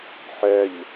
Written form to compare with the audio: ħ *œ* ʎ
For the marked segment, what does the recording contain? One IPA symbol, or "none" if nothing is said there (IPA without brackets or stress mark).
œ